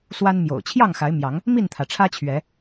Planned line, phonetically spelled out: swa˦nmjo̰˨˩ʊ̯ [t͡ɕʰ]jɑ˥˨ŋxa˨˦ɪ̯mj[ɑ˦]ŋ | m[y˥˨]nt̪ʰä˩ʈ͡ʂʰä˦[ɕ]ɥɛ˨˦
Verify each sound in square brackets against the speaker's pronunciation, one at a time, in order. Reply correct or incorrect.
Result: correct, incorrect, incorrect, incorrect

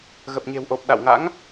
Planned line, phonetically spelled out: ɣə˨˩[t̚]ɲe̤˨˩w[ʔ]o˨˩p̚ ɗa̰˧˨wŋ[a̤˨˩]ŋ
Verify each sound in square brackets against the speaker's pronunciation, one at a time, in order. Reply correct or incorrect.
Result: incorrect, correct, incorrect

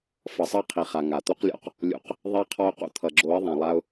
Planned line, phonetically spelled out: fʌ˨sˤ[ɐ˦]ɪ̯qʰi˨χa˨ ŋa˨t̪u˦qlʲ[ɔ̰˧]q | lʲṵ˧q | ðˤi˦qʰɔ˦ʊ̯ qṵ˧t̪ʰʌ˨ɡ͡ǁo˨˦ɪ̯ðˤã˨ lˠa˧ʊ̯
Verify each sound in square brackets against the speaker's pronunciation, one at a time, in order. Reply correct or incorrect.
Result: incorrect, correct

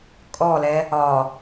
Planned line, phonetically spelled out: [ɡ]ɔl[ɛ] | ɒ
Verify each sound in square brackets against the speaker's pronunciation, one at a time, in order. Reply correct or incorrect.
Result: incorrect, correct

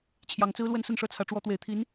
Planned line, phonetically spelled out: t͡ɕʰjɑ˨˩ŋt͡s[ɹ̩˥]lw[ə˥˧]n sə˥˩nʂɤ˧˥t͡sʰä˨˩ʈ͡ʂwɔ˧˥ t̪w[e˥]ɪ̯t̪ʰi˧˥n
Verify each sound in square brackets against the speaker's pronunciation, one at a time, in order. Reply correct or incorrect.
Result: correct, correct, incorrect

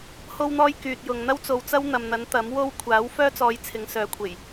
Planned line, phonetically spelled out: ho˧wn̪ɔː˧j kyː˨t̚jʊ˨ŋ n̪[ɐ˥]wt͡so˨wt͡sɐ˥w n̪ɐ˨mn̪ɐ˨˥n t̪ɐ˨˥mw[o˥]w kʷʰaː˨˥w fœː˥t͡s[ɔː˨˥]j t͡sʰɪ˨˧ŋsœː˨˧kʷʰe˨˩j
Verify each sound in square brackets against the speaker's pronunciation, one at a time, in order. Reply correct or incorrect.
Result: correct, correct, incorrect

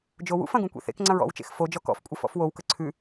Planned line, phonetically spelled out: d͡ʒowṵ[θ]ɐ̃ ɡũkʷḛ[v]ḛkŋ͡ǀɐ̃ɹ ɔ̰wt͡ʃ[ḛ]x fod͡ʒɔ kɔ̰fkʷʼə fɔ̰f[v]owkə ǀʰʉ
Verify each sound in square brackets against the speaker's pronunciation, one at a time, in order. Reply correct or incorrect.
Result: incorrect, incorrect, correct, incorrect

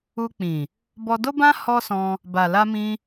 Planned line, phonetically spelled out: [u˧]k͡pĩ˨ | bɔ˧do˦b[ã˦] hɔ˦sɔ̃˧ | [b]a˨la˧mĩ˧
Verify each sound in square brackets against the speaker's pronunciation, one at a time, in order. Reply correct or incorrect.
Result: correct, correct, correct

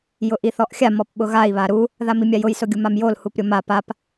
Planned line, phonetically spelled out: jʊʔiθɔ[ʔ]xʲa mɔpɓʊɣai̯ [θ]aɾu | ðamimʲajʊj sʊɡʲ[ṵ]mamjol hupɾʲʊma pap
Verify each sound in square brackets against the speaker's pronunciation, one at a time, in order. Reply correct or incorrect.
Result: correct, incorrect, incorrect

